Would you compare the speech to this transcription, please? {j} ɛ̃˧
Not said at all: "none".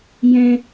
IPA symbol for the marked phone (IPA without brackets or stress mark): j